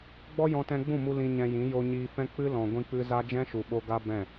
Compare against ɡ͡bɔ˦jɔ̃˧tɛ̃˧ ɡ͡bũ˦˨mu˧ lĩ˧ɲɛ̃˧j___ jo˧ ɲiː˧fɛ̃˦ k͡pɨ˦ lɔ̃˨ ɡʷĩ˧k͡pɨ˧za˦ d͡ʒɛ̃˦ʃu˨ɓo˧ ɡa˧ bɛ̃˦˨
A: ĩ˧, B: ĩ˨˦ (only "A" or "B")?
B